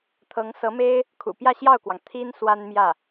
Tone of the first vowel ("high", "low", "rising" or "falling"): rising